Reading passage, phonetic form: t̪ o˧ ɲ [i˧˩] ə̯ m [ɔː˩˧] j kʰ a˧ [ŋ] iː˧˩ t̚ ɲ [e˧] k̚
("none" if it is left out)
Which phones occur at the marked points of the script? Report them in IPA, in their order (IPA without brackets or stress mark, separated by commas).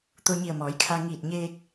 i˧˩, ɔː˩˧, ŋ, eː˧